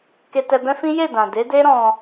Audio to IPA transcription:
k e˧ t ɛ˧ b ɛ̃˦ f ĩ˦ j e˦˨ d ã˨ d e˨˦ d e˦ ɾ ɔ̃˧

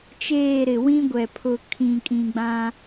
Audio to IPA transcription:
t͡ʃ eː˦˨ ɾ ɪ˨ w ĩ˦ ɡʷ ɛ˨ pʰ ʊ˨ kʰ ĩ˨ kʼ ĩ˨ ɡ͡b ã˦

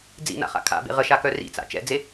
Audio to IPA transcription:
d͡z ḭ n a̰ χ a̰ kʰ a̰ b ḛ ʁ ə ʃ a k œ r ḭ t͡s a̰ t͡ʃ ɛ̰ d͡z e

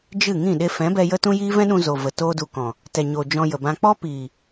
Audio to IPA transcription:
d͡ʒ ɨ˦˨ ŋ ĩ˦˨ ɗ e˧ f ɛ̃˨˦ b ɛ˧ j ə˦ t ũ˦ j iː˦ v ɛ̃˦ ɗ ũ˧ z o˨ v ə˨ t oː˦ d u˧ k ɔ̃˨ | t ɛ˨ ɲ oː˨ d͡ʒ ɔ̃˧ j ə˨ b ã˧ k͡p ɔ˦ p iː˨

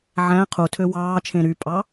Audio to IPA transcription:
ʕ æ̃ qʰ u tʰ ø w ɑː t͡ʃʰ ẽ ɾ y pʼ ɑ

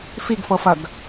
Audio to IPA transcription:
f i ɡ f ɤ f ɐ ɡ

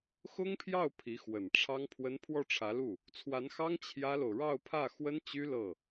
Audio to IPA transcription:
x ʊ˥ ŋ pʰ j ɑ˥˩ ʊ̯ pʰ i˧˥ x w ə˨˩ n ʈ͡ʂʰ ɑ˥ ŋ pʰ w ə˥ n pʰ w ɔ˥˩ ʈ͡ʂʰ ä˧˥ l u˥˩ | t͡sʰ w a˧˥ n x ɑ˥ ŋ t͡ɕʰ j ä˥ l o˨ ʊ̯ ɻ ɑ˥˧ ʊ̯ pʰ ä˥˩ x w ə˥ n t͡ɕ y˥ l ɤ˥˩

